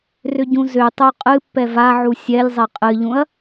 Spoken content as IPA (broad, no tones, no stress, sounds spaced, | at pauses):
r ʏ ɟ ũ z ʏ tˤ o qʼ ɨ pː ɛ v a ʕ u sʲ ɛ lʲ zˤ ɛ qʼ ɨ ʎ ũ ɐ̯